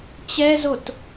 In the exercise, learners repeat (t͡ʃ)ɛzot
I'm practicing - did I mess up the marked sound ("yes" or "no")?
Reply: yes